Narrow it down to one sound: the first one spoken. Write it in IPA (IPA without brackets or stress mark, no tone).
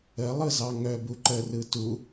ə